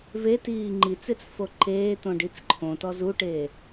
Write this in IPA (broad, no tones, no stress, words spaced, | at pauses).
ve tiːŋ͡ǃit͡set͡s foǃeːt̪õ ɖit͡sǃʰõtɔ zuʈeː